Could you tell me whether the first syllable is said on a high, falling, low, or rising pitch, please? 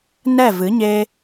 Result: falling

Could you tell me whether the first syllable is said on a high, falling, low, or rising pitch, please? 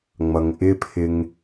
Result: low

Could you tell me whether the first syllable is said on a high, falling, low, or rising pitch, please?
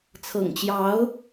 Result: low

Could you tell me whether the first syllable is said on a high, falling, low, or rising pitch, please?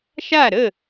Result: falling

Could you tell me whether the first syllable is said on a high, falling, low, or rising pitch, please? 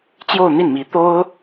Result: falling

